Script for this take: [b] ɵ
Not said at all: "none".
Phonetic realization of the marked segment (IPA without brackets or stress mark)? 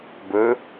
b